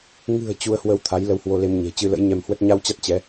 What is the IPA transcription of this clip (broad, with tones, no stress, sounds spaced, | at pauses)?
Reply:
ŋ ɨ̤˨˩ ə̯ t͡ɕ u˧ ə̯ h w ə˧ w t̪ʰ a˨˦ j l ə˧ w h w o˧ l e˧ m ɲ e̤˨˩ t͡ɕ ɨ˧ l ə̰˧˥ j ɲ ɛ˧ m h w ə˦˥ t̚ ɲ a˧ w t͡ɕ a˦˥ t̚ t͡ɕ ɛ˨˦